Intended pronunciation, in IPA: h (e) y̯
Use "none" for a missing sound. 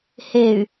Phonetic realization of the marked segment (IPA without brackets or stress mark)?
e